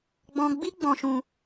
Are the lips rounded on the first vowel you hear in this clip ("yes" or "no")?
yes